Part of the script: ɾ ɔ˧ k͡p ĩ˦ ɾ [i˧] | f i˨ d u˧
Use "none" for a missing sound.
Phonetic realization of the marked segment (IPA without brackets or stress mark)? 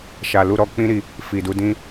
i˦˨